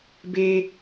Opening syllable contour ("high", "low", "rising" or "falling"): high